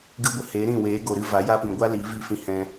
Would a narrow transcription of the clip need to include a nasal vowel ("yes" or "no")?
yes